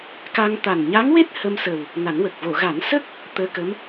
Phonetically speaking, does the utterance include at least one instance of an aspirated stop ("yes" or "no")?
no